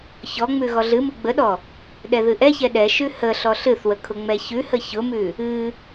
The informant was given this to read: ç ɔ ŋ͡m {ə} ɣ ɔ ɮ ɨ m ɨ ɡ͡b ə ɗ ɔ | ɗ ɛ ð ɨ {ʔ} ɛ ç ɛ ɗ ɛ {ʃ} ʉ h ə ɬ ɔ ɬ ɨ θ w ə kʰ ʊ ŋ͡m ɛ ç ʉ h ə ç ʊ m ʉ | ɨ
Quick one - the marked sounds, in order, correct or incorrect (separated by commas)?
incorrect, correct, correct